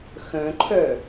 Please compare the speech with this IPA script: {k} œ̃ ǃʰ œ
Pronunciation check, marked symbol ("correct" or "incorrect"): incorrect